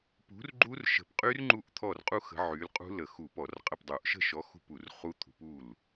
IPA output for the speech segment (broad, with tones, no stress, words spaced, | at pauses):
pṳ˨˥rɡ͡ǃu˦˥rʃə̤˧˩˧pqʼy˦˥r ŋ͡ǃu˥˩ʔt̪ʰɔ˥˩r qʼu˦˥ xə̤˨˥ʕy˨˥l qʼṳ˦˥lə˧˩˧xu˧˩˧ pɔ˧˩˧rqʼə˥˩pdˤu˧˩˧ʔ ʃə̤˥˩ʃɔ˨˥ xṳ˥˩pu˧˩˧rχu˦˥t̪ʰṳ˨˥p u˥˩l